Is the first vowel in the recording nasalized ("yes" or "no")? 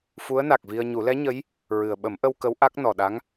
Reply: no